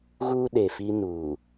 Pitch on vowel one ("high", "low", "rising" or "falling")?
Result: high